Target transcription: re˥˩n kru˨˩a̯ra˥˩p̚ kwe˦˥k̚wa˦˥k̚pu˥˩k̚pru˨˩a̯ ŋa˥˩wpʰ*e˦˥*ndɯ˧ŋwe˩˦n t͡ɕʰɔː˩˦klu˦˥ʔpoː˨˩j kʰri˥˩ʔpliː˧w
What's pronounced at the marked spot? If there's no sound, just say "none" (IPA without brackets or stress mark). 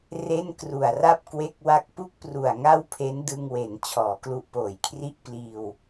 e˦˥